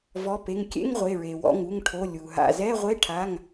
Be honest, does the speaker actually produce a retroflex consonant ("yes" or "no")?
yes